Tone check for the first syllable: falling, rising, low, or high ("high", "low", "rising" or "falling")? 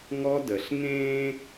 high